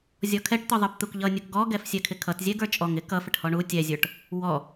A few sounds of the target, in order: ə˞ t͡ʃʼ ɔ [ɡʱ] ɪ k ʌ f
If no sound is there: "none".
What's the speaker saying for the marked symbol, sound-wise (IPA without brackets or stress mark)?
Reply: ŋ